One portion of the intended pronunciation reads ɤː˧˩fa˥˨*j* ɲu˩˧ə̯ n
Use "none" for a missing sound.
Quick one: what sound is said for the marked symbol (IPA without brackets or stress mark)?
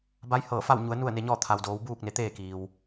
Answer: w